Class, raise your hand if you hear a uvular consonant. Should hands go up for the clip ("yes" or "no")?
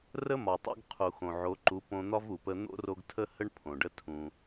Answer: yes